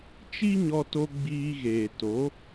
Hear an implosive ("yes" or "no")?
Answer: no